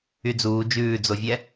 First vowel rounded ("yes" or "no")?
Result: yes